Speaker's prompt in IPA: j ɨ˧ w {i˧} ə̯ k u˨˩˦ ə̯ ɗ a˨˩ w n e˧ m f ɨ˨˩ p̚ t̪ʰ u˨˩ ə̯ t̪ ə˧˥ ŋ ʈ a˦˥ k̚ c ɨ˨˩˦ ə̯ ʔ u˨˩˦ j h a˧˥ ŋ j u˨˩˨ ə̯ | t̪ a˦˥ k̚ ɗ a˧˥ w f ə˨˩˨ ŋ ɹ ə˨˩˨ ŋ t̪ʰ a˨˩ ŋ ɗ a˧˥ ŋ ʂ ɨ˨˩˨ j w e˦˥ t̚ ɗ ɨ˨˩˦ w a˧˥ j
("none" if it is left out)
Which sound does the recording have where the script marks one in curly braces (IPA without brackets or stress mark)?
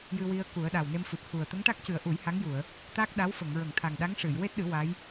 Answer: i˧